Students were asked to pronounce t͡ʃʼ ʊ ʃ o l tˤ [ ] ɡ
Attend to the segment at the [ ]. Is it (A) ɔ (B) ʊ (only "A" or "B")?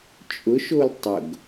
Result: B